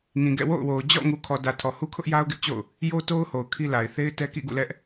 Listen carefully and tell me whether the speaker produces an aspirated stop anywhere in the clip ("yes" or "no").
yes